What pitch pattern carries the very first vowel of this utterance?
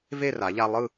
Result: falling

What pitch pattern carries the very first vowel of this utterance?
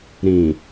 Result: low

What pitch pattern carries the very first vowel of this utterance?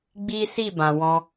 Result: high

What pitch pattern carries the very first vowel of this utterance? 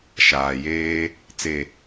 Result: low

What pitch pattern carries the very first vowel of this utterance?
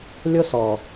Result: high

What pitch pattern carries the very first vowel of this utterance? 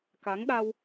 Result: rising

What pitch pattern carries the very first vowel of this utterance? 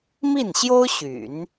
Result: falling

